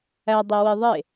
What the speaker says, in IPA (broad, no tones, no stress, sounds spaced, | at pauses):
æ dˤ e w i ðˤ e